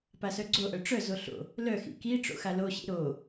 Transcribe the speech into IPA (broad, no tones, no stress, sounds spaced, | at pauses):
p a s œ ɡ͡ǀ o ʔ œ ʈ͡ʂ œ z o ɬ o̰ | l œ x ḭ k i ʈ͡ʂ o̰ x a l o ɕ ḭ ɾ o